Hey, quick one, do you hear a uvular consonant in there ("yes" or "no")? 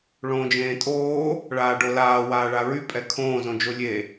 no